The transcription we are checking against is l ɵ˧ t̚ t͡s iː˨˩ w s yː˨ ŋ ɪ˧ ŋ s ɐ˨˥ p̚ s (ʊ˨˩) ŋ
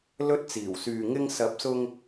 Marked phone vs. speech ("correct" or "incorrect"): incorrect